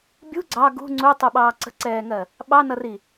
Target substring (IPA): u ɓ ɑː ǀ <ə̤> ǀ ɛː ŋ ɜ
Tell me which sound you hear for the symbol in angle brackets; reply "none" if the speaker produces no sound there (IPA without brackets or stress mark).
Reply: ə̤